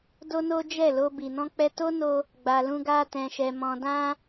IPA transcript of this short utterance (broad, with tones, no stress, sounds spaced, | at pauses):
d o˦ n o˦ d͡ʒ ɛ˦˨ l o˧ b i˨ n ɔ̃˧ k͡p ɛ˧ t o˦ n o˧ | ɡ͡b a˨ l ũ˧ ɡ a˧ t ɛ̃˨ ʃ ɛ˨ m ɔ̃˨ d ã˧